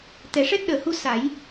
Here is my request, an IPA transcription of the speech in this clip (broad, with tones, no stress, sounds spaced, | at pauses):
t̪ ɛ˨˩ ʂ ɛ˦˥ t̚ ɗ əː˨˩ h u˧ s a˨˩˦ j